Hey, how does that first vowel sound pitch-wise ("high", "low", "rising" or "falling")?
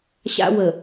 high